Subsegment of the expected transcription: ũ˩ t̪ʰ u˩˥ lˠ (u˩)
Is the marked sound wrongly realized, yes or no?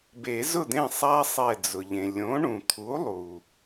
no